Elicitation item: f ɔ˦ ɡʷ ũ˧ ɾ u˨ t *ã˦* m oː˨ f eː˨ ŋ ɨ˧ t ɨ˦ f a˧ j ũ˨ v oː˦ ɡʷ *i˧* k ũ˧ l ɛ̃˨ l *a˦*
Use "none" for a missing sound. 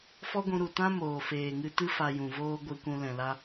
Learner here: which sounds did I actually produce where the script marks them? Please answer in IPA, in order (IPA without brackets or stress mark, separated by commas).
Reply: ã˦, i˧, a˦